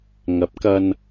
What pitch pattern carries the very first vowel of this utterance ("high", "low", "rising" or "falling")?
rising